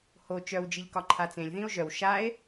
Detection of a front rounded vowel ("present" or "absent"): present